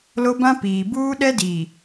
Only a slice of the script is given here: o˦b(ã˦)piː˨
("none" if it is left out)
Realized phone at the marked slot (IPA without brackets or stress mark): ã˦